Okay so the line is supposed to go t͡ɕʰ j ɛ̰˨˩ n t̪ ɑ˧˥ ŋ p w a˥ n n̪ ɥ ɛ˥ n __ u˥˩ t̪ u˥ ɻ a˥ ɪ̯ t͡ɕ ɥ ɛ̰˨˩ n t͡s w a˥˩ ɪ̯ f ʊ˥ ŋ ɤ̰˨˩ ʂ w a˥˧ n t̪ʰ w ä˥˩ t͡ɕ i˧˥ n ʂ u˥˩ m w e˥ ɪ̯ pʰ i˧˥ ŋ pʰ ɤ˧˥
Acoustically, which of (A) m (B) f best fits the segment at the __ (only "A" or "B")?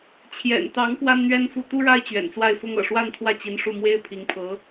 B